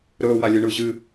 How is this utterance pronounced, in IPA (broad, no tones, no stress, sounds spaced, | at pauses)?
ɾ ɵː w a lʲ ɨ ɳ ɯː ʑ ɨ